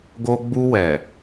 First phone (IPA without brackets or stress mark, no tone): ɡ